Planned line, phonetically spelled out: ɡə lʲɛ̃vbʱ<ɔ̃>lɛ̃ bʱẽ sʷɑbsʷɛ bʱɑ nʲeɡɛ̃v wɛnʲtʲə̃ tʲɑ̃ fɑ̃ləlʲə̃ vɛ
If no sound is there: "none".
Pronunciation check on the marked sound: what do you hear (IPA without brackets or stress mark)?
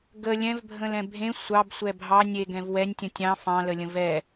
ə̃